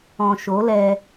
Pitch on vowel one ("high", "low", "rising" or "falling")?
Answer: low